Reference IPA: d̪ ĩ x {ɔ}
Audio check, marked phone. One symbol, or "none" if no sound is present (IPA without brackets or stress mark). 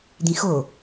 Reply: o